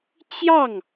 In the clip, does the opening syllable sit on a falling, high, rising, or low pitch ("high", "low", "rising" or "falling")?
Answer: falling